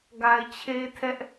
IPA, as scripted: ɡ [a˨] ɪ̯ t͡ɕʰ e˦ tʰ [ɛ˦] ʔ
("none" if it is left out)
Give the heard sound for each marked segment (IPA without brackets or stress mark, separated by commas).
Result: a˨, ɛ˦